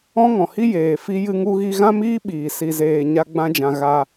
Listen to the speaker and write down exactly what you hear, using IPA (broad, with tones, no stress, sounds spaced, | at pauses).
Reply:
ɔ̃˦ ŋ ɔ̃˨ h i˦ j eː˨ f i˦ j ɨ˦ ŋ u˦ ɣ i˦ ɣ ã˦ m iː˦ ɓ iː˨ s i˧ z eː˧ ɲ a˦ ɡ͡b ã˦ d͡ʒ ã˧ ɣ a˧